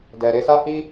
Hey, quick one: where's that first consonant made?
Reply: tongue tip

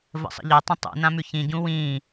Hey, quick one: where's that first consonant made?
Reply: lips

